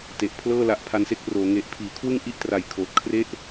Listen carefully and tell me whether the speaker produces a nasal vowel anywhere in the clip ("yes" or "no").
no